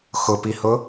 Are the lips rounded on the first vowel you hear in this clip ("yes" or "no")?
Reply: yes